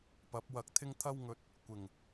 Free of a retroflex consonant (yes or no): yes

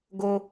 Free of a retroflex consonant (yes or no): yes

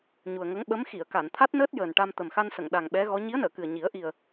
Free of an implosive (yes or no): no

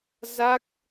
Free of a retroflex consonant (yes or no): yes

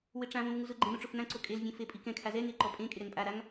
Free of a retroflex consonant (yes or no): no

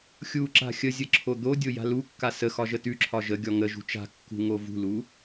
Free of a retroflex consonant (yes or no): yes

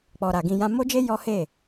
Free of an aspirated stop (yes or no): yes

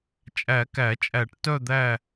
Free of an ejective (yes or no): no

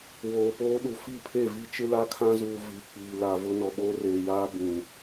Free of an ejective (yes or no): yes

